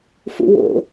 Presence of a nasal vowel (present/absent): absent